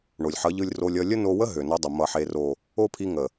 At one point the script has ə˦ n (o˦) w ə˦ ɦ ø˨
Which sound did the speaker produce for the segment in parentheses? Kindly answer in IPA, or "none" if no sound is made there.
o˧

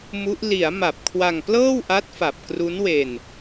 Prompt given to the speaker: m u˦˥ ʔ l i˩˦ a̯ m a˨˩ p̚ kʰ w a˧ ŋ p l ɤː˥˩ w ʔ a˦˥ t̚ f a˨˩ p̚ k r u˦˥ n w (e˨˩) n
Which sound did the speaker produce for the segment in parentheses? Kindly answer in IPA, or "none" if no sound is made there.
e˧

